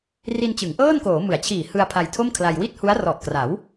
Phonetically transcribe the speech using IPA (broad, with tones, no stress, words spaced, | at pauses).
ri˧nt͡ɕɯ˩˦ŋʔɤː˥˩nkoː˩˦ mɯ˩˦a̯t͡ɕʰiː˨˩hɯ˧a̯ pʰa˧jtʰo˥˩mkʰla˧j wi˥˩t̚hu˦˥a̯ rɔ˨˩ʔkra˩˦w